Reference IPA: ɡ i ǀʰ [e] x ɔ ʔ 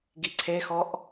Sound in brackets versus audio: correct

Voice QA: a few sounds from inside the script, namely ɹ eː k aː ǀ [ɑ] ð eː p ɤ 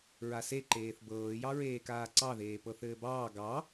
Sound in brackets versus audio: correct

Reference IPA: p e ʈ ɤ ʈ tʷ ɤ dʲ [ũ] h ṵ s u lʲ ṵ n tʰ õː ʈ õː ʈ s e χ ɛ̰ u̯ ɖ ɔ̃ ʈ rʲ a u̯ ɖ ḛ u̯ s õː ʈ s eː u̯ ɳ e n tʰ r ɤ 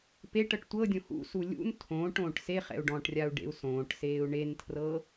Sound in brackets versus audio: incorrect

